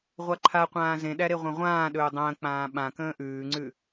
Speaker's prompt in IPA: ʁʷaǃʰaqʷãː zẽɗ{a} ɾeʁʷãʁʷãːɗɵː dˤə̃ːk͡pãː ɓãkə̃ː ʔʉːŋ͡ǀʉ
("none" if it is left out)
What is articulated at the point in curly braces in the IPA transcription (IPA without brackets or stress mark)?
æ